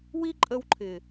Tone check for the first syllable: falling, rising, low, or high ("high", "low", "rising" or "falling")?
high